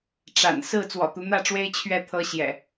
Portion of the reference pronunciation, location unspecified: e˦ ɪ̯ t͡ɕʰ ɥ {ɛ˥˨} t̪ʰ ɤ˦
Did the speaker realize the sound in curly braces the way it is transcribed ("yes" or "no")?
yes